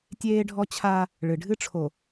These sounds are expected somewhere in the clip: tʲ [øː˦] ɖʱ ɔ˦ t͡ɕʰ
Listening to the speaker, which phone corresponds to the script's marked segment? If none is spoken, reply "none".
eː˦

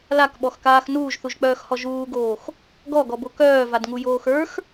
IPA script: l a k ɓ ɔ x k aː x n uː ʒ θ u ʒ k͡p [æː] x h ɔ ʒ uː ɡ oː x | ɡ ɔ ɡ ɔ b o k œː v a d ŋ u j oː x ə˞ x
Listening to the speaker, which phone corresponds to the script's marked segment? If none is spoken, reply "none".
œː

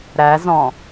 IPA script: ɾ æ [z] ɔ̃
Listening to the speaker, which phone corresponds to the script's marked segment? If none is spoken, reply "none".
z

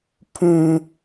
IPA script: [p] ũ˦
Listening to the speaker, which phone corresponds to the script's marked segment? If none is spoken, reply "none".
pʰ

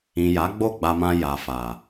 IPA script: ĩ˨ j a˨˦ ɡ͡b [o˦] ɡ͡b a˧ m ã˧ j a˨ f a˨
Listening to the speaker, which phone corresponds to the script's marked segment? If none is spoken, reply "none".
o˦˨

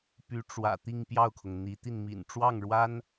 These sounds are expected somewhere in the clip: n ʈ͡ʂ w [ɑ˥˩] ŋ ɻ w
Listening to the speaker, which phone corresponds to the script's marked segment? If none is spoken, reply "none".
ɑ˥˩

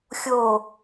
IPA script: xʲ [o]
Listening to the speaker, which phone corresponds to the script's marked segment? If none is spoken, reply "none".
o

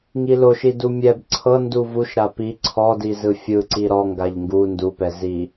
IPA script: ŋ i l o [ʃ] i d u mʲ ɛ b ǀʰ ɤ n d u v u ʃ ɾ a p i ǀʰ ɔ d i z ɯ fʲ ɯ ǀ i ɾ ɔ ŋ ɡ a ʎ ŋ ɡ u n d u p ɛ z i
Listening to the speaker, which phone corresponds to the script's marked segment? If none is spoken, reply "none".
ʃ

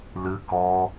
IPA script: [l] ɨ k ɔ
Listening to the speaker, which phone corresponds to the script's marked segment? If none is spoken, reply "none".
l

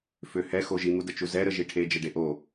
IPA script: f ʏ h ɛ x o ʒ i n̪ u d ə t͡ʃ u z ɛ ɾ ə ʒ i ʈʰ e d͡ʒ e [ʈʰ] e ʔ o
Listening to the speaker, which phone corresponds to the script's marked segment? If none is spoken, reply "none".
ɖ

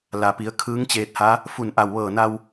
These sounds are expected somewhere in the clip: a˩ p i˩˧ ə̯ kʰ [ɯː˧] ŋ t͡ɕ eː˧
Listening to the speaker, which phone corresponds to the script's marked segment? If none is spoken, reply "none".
ɯː˧˥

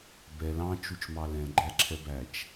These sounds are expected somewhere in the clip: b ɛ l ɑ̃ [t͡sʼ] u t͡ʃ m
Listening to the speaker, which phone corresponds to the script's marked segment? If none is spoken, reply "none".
t͡ʃ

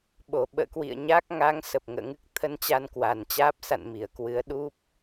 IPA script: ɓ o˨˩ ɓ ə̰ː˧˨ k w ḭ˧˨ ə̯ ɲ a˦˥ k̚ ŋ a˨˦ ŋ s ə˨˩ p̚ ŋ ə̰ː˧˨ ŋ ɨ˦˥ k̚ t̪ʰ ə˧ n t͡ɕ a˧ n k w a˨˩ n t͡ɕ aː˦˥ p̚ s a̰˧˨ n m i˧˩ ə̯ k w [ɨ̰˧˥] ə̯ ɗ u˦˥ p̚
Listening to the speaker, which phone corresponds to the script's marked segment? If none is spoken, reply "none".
ɨ˨˦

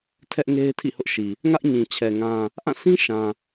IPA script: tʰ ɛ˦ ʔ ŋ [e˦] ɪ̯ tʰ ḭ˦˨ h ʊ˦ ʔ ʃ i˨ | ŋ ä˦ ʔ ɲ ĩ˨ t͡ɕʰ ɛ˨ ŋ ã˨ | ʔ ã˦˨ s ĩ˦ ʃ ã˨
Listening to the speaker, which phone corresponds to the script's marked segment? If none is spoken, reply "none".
e˦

